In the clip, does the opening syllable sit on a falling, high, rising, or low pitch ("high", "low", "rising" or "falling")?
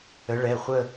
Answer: rising